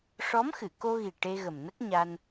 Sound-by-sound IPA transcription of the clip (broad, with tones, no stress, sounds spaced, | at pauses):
ʂ ɔ˧˥ m x ɨ˨˩˨ k o˧ ɣ i˨˩ ʈ e˧ ɣ ə˨˩ m n ə˦˥ k̚ ɲ a˧ n